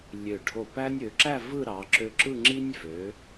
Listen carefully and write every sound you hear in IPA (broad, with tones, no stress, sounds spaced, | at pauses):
lʲ ø˧˩ ɖʱ o˧˩ p æ˥ nʲ ø˩˧ ǁ æ˥˧ v ɯ˥˧ ɾ ɑ˩˧ ǁ ø˧ ǁ ɯ˥˧ ŋ͡ǁ i˥ nʲ v ø˩˧